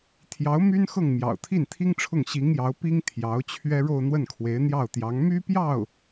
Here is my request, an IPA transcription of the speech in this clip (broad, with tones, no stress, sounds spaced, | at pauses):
t̪ʰ j ɑ˧˥ ʊ̯ m y˥ n x ɤ˥˩ ŋ m j ɑ̰˨˩ ʊ̯ t̪ʰ i˥˩ n t̪ʰ i˥ ŋ ʈ͡ʂʰ ʊ˥˩ ŋ ɕ i˧˥ ŋ j ɑ˧˥ ʊ̯ p i˥ ŋ t̪ʰ j ɑ˧˥ ʊ̯ t͡ɕʰ ɥ ɛ˥ ɻ o˥˧ ʊ̯ n̪ w ə˥˩ n kʰ w e˧˥ ɪ̯ n̪ j ɑ˥˩ ʊ̯ t̪ j ɑ˧˥ ŋ m y˥ p j ɑ˥˩ ʊ̯